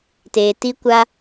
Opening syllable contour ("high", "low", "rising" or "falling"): low